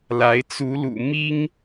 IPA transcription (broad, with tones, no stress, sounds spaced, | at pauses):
l a˧˥ ɪ̯ t͡s u˧˥ l ṵ˨˩ m i˥ ŋ